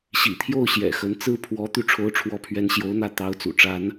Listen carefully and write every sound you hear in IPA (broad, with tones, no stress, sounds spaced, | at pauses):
ɕ ḭ˨˩ t̪ʰ j o˥˩ ʊ̯ ɕ j ɛ̰˨˩ x ə˧˥ n t͡s ɹ̩˥˩ pʰ w ɔ˧˥ t̪ y˥˩ ʈ͡ʂʰ o˧˥ ʊ̯ ʈ͡ʂʰ w ɔ˧˥ pʰ ɥ ɛ˧˥ n ɕ j o˧˥ ʊ̯ n̪ ä˥˩ t̪ ɑ˧˥ ʊ̯ t͡s ṵ˨˩ ʈ͡ʂ a˧˥ n